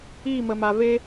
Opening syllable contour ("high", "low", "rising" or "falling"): falling